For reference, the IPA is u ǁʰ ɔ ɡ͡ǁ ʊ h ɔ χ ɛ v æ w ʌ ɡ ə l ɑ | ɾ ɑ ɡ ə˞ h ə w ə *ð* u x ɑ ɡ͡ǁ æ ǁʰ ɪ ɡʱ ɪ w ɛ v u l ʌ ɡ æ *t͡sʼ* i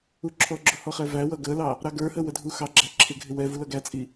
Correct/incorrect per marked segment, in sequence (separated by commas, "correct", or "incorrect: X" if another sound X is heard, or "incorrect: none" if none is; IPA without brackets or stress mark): incorrect: dʱ, correct